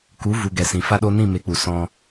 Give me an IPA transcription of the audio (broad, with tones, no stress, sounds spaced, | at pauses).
k u˨˦ v u˨ ɡ ɛ˨ s ĩ˨ f a˦ ɗ o˦ n ĩ˦˨ m e˨˦ k͡p u˨ s ɔ̃˧